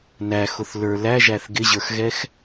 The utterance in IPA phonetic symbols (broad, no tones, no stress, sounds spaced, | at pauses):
n æ x ʊ θ l ə˞ l æ ʒ æ θ ɡ ɪ ʑ ə˞ x ɣ ɛ x